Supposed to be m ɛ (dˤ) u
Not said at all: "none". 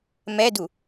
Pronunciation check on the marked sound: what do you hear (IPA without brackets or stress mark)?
d